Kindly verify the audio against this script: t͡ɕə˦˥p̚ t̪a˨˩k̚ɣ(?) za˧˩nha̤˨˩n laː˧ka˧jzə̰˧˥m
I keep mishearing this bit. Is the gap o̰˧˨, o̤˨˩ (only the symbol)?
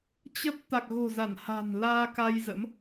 o̤˨˩